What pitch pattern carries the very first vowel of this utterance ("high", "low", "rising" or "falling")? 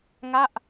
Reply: falling